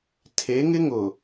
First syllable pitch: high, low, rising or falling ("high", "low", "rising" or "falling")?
rising